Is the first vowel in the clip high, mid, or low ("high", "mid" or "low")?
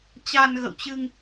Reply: low